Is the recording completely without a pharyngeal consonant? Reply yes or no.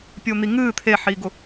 no